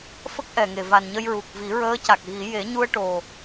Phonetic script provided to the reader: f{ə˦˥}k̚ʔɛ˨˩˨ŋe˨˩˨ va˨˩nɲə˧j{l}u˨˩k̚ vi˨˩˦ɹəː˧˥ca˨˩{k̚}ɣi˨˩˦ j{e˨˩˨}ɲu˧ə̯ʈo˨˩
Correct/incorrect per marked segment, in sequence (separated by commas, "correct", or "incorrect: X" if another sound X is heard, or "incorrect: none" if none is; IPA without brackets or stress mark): correct, incorrect: ɹ, correct, incorrect: e˨˩˦